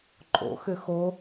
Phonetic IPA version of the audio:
ǃʼ o̰ x ʏ x o

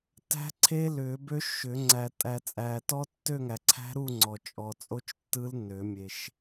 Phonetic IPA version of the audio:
t æ̤˦˥ ǀʰ e˦˥ l ʏː˨˩˦ b ø˦˥ ʃ ʏ˨˩˦ ŋ͡ǀ æ˨ tʼ æ˨ t͡sʼ æː˨ t ɔ˦˥ tː ø˥˧ ŋ æ˨ ǀʰ æ̤˦˥ ɾ u˥˧ ŋ͡ǀ ɔ˨ t͡ʃʼ ɔ˨ t͡sʼ o˦˥ t͡ʃ tː ɯ˦˥ l nː ø˨˩˦ mʲ e˨ ʃ

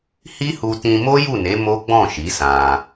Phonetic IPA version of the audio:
h i˦ h u˧ t ĩ˧ m o˦ j u˦˨ n e˨˦ m o˦ ɡ͡b ɔ̃˦˨ ʃ i˨˦ s ã˧

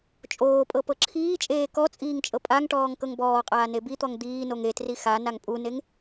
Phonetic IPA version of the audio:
t͡ʃʼ oː pʼ ɤ p ɤ ǁʰ iː t͡ʃʼ eː k ɔ t͡sʼ iː ŋ t͡ʃʼ ɤ pʼ a ŋ ʈ ɔː ŋ k ɤ ŋ b ɔː qʼ aː n e b i t̪ ɔ ŋ d̪ iː n o ŋ e t r i x a n a ŋ pʼ u n e ŋ

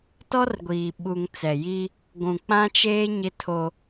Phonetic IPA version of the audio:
t ɔ˦ r ɡʷ iː˨ ɓ u˨ ŋ t͡s ɛ˨ j i˦ | ɡʷ ũ˨ k͡p ã˦ t͡ʃ eː˦ ɲ ɪ˦ tʰ o˦

